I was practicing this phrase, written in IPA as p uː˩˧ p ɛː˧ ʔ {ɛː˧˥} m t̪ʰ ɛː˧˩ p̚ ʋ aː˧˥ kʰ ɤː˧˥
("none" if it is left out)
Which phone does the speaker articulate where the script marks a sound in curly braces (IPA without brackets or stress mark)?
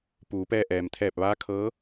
ɛː˩